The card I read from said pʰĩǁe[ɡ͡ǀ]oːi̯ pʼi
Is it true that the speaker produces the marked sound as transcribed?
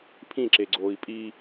yes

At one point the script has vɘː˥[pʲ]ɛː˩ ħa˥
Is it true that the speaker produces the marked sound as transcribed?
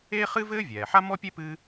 no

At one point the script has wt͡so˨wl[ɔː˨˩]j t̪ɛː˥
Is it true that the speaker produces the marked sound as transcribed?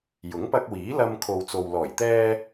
yes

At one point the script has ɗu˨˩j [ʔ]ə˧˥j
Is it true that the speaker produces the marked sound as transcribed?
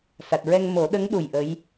yes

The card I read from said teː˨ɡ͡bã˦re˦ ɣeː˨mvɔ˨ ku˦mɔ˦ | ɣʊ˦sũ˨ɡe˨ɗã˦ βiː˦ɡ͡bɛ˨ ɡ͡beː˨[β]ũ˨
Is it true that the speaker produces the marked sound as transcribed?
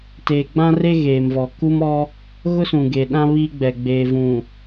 no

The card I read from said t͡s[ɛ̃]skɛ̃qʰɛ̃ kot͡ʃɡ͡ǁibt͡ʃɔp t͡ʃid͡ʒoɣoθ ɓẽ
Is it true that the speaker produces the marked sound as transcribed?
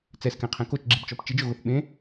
no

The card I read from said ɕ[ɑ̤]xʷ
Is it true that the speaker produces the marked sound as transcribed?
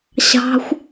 yes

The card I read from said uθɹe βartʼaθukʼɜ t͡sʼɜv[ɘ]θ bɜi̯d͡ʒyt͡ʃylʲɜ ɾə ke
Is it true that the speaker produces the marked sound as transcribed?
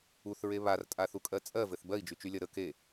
yes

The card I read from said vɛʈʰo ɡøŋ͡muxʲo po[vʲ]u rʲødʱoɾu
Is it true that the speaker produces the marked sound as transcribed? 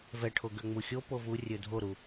no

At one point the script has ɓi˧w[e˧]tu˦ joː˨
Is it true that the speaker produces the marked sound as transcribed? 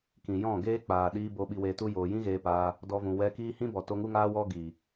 no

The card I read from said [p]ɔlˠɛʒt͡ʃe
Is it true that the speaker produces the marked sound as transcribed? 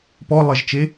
yes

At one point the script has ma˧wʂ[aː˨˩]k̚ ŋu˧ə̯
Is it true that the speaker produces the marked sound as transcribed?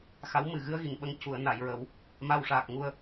yes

